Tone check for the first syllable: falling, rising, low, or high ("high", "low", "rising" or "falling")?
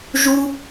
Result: high